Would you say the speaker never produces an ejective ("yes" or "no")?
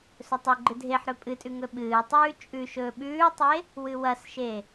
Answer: no